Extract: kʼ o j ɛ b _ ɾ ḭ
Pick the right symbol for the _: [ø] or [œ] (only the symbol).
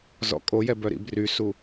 œ